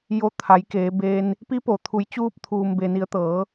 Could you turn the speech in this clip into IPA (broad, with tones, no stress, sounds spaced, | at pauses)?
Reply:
j o˧˥ t̪ʰ a˩˧ j k eː˩˧ b eː˧ n | p i˧˥ p o˩ t̪ʰ u˩˧ j t͡ɕ uː˧ p̚ t̪ʰ uː˩ m b e˩ n i˩˧ ə̯ t̪ ɤː˩˧